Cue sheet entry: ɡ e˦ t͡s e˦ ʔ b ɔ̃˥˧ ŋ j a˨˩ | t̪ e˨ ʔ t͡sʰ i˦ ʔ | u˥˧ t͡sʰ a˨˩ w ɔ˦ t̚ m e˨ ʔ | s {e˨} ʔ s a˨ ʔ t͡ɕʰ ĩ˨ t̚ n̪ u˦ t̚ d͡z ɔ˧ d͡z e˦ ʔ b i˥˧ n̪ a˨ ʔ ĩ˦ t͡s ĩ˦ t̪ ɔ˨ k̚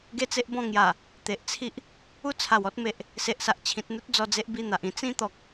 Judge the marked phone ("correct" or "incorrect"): correct